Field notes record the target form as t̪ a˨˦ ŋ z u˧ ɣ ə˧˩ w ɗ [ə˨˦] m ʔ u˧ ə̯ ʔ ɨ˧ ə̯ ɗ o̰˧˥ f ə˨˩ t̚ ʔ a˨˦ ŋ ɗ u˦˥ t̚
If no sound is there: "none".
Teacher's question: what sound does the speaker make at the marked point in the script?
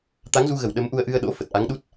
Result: ə˨˦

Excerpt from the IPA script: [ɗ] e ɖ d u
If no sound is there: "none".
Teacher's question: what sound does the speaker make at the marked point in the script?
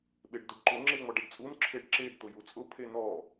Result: ɓ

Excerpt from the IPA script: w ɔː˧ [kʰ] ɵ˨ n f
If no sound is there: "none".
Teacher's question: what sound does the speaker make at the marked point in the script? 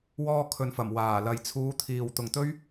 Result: kʰ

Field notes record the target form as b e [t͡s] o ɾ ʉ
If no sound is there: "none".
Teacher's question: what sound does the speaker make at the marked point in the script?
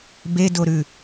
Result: d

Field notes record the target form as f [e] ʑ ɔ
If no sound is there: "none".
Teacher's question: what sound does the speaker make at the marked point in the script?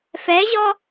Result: ɛ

